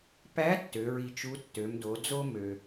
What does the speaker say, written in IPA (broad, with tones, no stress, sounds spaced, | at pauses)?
p æ˧˥ tː ø˩˧ ɹ i˧ t͡ʃ u˧˥ tː ø˩˧ m d o˩˧ d͡z o˥ m ø˩